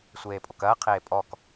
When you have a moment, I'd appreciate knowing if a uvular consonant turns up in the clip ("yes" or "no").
yes